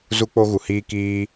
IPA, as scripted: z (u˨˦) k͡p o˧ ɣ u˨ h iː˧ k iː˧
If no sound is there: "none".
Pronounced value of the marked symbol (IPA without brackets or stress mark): u˧